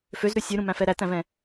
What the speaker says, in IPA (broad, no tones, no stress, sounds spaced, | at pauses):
f ø z ɾ ʉ sʲ ʉ ɾ ũ m æ̃ f ɛ ɾ æ t æ̃ v ɛ̃